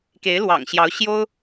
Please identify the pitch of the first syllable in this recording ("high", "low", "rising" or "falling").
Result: rising